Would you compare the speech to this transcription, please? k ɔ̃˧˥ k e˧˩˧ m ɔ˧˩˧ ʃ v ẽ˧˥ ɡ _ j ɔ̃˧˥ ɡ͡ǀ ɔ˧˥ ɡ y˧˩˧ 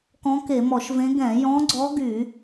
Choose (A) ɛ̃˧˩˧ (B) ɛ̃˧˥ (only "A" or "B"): A